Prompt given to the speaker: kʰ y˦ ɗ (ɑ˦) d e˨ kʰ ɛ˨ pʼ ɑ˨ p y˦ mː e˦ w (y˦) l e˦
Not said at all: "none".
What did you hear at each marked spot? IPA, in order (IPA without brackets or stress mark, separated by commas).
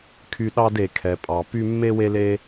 ɑ˦, e˦